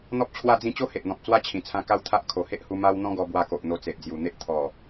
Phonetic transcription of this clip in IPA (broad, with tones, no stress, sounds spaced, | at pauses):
n̪ ɔ˦ p̚ t͡ɕʰ w a˥˧ d͡z ĩ˥˧ t͡ɕ o˦ h e˨ ʔ n̪ ɔ̃˨ p̚ t͡s w a˦ t͡ɕʰ ĩ˨˩ t͡sʰ ã˧ k a˦ w t̪ʰ a˦ ʔ kʰ o˨˩ h e˦ ʔ h u˧ m a˦ w n̪ ɔ̃˦ ɡ ɔ˧ b w a˧ k o˨ ʔ n̪ o˧ t͡s e˨ ʔ d͡z j u˨˩ n̪ e˦ ʔ t̪ʰ ɔ˨˩